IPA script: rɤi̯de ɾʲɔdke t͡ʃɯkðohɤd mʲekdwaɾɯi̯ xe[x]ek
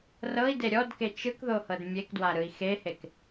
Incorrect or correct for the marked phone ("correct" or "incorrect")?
incorrect